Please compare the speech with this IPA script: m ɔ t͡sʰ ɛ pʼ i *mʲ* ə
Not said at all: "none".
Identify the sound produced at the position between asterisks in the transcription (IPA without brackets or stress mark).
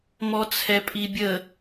bʲ